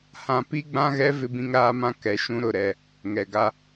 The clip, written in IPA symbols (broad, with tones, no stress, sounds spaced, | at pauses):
h ã˨ p i˦ ɡ͡b ã˦ ɣ ɛ˦ v ɪ˦ b ĩ˦ ŋ ɾ aː˦ m ã˦ k ɛ˦ ʃ ũ˦ ɾ ʊ˦˨ ɾ ɛ˦˨ | ŋ ɛ˨ ɡ a˦